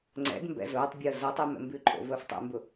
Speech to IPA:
ŋ͡ǀ ɛ̰ d m b ɛ̰ z ʊː tˤ bʲ əː z o tˤ i m ɛ̰ m b ʉ ǃʼ o̰ v əː f tˤ ɛ̰ m b ʊ

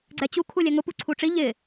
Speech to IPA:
ɡ͡ǀ ɛ t͡ɕ u kʰ u lʲ ɛ ŋ ʊ p u ǀʰ u ʈ͡ʂ i ʎ ɪ

